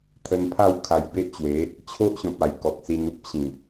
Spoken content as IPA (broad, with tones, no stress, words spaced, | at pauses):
t̪ʰə˧npʰa˥˧w kʰa˧jbe˦ʔt͡ɕwe˨˦ | t͡ɕʰo˦ʔɕɔ̃˨p̚a˨˩j kɔ˨k̚si˧nu˦p̚ ɕĩ˨˩